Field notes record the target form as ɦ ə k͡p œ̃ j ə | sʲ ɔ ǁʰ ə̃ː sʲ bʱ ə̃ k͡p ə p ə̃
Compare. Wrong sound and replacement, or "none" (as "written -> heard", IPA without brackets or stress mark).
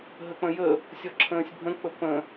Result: œ̃ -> ə̃